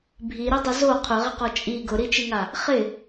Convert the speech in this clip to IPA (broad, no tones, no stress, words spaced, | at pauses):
bʱiɾidˤɛ zo qʰʊʁɪqɔ t͡ʃʼi ɡʊɾit͡ʃiŋa | χɪ